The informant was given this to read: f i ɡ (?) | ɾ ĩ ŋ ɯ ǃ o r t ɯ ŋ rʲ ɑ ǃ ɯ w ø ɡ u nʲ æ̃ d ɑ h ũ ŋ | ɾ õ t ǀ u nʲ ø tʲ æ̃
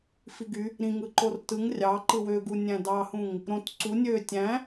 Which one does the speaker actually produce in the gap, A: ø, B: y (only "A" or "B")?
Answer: B